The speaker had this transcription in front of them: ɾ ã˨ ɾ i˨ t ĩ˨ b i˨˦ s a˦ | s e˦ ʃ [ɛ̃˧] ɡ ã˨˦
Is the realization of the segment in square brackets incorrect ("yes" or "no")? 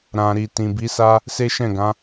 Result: yes